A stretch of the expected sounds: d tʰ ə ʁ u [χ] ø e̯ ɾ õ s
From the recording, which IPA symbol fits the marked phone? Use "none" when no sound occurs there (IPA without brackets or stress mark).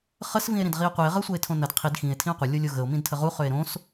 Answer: χ